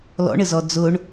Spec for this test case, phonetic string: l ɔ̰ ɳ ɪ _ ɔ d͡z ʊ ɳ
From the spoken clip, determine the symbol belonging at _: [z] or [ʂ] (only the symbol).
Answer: z